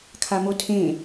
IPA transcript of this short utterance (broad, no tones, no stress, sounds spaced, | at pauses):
kʰ a m o tʰ ẽ